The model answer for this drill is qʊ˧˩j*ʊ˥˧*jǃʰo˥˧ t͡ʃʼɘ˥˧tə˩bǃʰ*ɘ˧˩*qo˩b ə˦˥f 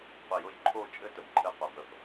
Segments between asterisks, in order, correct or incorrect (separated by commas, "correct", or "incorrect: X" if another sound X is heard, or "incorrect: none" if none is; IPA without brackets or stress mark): correct, correct